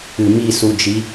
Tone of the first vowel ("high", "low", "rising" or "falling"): low